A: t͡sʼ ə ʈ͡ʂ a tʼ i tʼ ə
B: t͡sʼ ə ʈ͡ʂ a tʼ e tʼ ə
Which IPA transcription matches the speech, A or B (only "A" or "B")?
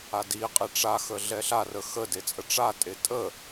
B